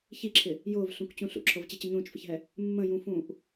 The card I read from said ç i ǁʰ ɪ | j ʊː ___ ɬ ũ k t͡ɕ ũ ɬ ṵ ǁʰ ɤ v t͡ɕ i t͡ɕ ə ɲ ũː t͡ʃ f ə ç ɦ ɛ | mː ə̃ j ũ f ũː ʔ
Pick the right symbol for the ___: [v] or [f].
v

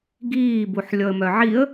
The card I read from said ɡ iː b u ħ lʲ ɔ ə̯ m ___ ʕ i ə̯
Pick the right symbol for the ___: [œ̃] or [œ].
œ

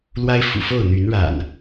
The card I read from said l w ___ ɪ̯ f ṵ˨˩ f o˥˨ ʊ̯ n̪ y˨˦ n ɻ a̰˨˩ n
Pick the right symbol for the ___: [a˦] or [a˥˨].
a˦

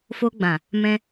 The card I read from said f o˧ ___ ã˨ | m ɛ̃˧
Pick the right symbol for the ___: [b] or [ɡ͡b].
ɡ͡b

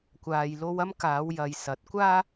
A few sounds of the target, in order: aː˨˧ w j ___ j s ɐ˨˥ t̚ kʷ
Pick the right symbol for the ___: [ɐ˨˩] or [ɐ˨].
ɐ˨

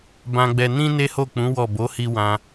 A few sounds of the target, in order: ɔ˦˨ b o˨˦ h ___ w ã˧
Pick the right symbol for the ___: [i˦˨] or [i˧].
i˧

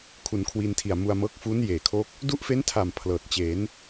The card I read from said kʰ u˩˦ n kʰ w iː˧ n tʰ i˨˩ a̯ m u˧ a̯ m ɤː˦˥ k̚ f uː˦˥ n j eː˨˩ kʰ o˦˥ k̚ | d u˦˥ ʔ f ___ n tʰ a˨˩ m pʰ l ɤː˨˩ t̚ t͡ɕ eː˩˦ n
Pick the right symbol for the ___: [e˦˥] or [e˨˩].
e˦˥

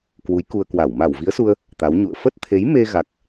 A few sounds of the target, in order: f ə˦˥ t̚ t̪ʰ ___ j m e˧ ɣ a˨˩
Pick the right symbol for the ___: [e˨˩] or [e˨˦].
e˨˦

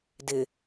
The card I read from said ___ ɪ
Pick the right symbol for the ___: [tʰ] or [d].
d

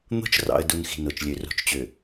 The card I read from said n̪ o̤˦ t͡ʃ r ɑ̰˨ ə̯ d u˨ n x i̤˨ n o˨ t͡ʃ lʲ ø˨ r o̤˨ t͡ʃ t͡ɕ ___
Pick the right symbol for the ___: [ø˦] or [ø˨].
ø˨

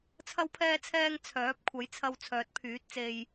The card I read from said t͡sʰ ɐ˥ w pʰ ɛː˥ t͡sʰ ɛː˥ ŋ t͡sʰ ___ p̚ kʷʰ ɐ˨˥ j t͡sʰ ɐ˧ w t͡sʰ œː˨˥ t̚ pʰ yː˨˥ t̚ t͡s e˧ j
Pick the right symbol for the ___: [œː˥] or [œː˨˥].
œː˨˥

